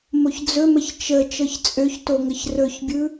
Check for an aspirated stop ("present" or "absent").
absent